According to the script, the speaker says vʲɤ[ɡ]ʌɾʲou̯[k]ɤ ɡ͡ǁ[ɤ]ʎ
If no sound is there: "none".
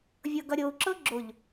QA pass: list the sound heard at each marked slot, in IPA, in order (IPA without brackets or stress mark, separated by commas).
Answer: ɡ, ǁ, o